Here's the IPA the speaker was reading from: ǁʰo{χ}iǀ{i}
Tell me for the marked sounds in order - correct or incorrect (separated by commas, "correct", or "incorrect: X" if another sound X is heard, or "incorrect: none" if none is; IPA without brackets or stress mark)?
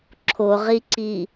incorrect: ʁ, correct